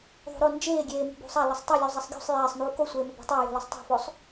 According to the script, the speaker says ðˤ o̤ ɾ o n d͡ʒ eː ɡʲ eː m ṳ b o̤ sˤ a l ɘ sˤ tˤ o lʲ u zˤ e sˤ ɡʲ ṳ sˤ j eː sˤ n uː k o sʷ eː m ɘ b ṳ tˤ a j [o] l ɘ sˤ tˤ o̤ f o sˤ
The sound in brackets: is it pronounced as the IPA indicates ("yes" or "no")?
no